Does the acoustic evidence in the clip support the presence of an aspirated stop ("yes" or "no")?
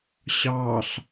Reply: no